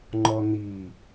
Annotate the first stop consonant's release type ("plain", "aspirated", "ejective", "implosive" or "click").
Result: click